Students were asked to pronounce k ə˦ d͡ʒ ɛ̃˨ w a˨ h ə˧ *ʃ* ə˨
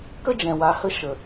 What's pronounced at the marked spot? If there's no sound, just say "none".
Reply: ʃ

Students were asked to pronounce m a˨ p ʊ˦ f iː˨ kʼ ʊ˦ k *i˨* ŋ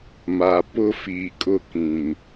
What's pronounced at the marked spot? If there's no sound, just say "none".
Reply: ĩ˨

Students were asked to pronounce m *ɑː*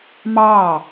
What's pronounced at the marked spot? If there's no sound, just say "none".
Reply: ɑː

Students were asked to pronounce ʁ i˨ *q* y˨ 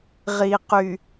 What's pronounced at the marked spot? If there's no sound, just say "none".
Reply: q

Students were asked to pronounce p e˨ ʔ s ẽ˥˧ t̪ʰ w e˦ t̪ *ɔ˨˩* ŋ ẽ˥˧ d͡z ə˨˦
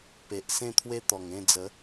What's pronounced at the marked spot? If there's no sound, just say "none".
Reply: ɔ˨˩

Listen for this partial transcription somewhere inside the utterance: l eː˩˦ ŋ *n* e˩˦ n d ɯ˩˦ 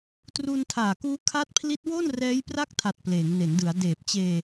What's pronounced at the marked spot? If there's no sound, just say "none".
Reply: n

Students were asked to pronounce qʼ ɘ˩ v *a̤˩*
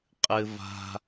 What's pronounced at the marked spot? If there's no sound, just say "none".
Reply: a̤˩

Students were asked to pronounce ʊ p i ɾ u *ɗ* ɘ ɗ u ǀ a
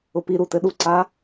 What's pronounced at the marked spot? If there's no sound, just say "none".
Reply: t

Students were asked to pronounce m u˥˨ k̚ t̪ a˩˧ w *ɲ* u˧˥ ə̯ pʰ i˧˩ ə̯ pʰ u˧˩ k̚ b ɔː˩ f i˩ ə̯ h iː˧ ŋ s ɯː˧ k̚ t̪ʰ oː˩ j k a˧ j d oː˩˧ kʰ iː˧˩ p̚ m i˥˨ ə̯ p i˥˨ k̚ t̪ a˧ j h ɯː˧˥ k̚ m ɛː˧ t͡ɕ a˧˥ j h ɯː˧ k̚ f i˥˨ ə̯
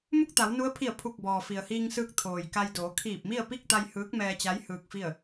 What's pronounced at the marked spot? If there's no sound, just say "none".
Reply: n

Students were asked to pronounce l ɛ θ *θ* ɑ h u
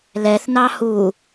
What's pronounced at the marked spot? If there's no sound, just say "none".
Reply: n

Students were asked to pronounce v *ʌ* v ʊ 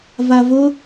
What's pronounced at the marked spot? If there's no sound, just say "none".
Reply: a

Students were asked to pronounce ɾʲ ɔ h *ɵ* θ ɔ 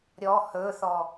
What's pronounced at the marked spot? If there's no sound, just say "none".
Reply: ɵ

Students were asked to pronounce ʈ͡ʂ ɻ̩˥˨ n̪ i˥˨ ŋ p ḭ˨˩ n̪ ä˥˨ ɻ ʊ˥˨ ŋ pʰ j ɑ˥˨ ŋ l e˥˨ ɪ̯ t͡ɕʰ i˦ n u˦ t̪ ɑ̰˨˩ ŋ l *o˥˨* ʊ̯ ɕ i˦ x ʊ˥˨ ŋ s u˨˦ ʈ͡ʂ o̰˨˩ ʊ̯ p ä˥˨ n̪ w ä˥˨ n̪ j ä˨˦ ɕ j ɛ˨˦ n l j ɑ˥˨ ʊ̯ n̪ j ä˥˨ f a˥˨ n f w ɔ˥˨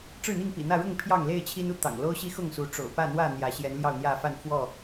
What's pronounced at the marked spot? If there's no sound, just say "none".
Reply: o˦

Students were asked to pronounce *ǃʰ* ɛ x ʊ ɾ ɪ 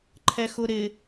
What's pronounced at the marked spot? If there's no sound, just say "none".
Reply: ǃʰ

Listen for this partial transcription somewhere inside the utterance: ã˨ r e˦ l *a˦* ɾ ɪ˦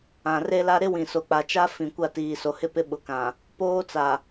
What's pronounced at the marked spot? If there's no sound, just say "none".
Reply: a˦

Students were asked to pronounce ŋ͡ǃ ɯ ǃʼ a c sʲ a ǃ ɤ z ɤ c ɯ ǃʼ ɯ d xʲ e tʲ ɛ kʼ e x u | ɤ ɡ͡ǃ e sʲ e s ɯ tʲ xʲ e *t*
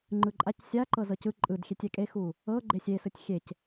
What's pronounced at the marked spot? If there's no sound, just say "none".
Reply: c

